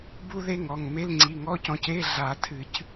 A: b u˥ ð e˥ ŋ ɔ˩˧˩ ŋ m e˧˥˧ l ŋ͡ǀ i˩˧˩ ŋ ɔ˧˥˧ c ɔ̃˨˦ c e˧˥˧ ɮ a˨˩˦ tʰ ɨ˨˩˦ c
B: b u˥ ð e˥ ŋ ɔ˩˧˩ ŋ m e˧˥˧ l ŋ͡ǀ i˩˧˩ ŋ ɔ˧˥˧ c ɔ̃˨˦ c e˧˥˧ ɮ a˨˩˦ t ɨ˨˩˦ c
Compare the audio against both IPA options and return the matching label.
A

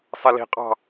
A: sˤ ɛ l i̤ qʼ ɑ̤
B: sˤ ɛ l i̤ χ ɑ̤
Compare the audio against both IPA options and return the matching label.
A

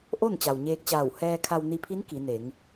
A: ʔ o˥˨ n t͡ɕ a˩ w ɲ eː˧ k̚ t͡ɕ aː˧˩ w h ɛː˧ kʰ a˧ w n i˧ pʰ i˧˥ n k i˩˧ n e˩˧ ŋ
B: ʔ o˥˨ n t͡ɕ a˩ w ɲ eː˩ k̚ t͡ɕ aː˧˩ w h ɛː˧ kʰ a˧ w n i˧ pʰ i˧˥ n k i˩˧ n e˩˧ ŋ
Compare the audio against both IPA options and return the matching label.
A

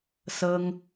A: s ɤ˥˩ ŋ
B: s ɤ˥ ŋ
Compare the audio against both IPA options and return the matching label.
B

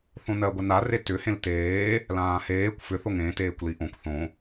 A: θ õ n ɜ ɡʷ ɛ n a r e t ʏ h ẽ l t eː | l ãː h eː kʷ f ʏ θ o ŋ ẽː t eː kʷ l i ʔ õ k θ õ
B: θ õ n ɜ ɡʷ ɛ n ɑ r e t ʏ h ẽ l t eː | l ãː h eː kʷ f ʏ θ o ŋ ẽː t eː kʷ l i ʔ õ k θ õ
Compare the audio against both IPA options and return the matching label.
A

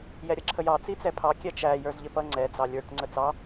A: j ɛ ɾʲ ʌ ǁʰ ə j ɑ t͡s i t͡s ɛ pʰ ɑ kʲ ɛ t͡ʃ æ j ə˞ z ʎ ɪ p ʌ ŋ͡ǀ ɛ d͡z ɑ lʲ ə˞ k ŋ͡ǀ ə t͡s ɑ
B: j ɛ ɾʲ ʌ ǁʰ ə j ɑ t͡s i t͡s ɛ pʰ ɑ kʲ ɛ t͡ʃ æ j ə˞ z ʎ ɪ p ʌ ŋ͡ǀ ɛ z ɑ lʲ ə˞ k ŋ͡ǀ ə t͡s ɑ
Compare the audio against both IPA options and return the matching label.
A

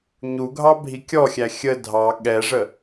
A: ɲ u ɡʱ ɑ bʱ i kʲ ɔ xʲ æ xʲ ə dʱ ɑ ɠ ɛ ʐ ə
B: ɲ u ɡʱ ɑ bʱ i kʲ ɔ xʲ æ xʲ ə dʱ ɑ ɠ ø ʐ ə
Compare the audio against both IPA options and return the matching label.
A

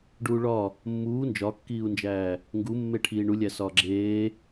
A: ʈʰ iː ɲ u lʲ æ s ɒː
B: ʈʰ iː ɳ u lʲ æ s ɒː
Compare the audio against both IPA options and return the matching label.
B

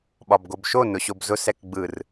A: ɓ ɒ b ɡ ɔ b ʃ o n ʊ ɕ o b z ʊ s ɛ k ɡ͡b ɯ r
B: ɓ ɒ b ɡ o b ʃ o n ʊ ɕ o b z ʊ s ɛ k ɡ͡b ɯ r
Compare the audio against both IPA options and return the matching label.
B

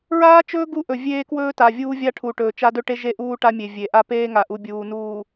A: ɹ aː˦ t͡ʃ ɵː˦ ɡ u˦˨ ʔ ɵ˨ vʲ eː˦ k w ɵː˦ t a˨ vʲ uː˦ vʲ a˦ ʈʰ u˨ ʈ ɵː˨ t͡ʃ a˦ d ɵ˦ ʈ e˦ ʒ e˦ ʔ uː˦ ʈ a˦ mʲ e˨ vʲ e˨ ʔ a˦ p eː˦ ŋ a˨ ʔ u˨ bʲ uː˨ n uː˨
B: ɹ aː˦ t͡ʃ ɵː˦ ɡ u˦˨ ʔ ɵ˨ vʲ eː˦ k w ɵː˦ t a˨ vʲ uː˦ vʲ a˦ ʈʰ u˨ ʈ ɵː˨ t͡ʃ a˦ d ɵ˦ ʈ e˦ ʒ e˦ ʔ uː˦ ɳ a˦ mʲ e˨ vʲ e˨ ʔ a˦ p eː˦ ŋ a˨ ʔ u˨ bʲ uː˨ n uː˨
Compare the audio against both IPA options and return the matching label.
A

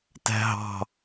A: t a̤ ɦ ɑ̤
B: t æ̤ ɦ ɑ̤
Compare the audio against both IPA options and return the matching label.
B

